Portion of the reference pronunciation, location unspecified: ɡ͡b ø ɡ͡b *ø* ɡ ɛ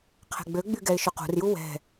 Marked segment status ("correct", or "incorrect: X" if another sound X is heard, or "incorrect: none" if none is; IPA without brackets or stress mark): incorrect: y